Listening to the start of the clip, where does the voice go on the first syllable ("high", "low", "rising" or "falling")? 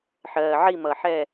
low